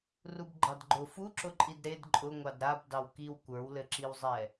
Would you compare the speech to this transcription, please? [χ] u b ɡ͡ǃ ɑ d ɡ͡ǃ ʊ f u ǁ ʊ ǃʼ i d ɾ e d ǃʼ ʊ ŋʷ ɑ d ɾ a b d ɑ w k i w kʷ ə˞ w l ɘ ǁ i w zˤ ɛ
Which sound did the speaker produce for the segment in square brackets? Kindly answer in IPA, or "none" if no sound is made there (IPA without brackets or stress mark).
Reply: r